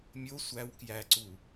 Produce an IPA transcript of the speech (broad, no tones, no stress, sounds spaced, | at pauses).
mʲ o sʷ æ w k j æ ǀ u